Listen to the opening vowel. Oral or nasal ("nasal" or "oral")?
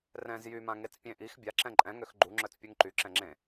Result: nasal